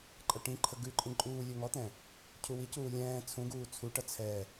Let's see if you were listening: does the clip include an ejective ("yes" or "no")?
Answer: yes